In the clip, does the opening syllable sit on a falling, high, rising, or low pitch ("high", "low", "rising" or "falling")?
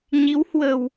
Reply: rising